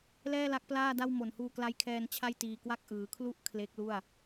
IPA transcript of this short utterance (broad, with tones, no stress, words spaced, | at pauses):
lɛː˥˩la˦˥k̚plaː˥˩da˥˩w mo˨˩nhuː˧kla˦˥jkʰɛː˧n t͡ɕʰa˥˩jtiː˧kwa˥˩k̚ ʔɯː˩˦kʰlu˥˩ʔ kʰle˦˥k̚lu˥˩a̯